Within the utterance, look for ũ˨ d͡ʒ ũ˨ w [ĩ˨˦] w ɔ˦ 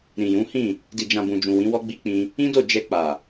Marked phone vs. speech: correct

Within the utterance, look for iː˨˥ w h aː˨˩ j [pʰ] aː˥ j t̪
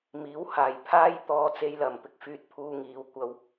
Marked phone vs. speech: correct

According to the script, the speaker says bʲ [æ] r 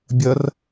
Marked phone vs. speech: incorrect: ɐ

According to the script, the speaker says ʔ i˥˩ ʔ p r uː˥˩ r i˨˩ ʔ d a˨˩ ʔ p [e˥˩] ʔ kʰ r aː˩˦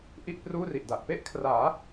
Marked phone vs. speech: correct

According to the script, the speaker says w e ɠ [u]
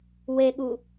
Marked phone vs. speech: correct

